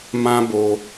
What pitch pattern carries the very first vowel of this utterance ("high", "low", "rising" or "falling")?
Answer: high